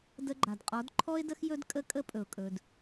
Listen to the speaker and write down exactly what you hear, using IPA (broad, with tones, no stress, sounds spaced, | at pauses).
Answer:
d ə˧ ɡ͡ǃ a˨ d qʼ ɔ˨˦ d ǃʰ ɔ˧ ɪ̯ d ə˧ x j ɵ˦ d kʼ ə˦ kʼ ə˦ pʼ ɵ˨ ʊ̯ kʼ ɵ˨ d